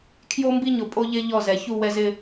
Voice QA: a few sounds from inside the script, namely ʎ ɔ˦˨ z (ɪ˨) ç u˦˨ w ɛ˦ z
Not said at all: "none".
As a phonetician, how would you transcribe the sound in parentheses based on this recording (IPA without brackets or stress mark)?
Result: ɛ˨